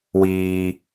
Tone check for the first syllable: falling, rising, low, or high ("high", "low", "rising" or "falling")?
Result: high